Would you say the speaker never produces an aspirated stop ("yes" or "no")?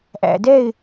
yes